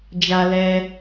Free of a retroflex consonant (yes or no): yes